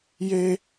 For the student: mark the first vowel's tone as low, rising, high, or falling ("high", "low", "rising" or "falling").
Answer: high